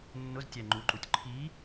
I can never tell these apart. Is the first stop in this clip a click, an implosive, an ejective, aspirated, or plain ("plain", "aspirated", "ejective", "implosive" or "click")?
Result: plain